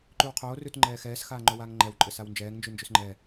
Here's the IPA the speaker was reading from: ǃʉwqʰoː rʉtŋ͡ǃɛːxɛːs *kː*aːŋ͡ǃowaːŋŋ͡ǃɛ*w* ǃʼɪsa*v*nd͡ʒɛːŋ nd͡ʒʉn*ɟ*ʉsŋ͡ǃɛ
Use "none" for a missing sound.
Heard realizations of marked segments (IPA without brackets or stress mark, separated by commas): x, w, w, d͡ʒ